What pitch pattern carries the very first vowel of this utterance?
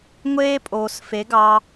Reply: high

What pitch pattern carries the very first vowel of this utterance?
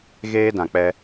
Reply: high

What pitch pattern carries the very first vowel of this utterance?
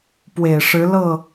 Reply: low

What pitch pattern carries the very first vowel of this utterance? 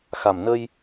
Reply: low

